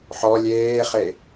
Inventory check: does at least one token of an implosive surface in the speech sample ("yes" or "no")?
no